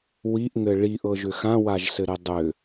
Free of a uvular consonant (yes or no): yes